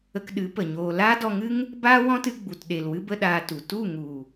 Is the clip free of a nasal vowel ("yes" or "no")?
no